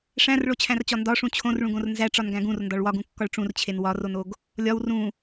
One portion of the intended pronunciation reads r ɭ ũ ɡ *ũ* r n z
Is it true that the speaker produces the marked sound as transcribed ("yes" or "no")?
no